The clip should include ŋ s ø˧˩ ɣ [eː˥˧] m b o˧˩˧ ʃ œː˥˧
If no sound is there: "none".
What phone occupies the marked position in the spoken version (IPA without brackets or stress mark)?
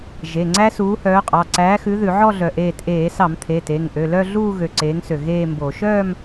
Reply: eː˥˧